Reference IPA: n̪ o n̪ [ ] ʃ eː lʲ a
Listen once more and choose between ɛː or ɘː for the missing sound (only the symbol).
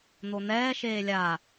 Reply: ɛː